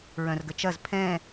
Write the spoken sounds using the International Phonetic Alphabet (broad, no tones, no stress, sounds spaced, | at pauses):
ɹ œ̃ r ɡ ə t͡ʃ ɐ z pʰ ɛ̃